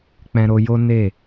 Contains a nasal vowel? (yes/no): yes